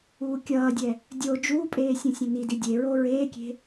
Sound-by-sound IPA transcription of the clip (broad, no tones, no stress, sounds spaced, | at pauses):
uː kʲ ʌː dʲ ɛ | dʲ o d͡ʒ uː pʼ eː sʲ õ sʲ ɛ̃ n i d i dʲ e ɹ o ɹ eː kʲ e̤